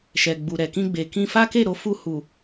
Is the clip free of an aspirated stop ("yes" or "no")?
yes